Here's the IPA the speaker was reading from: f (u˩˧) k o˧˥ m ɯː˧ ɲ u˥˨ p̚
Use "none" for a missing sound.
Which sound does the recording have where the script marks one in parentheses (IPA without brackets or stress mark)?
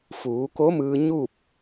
uː˩˧